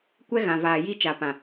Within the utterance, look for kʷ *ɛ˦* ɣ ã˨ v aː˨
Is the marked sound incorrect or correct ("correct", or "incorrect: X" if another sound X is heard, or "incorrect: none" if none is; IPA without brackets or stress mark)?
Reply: correct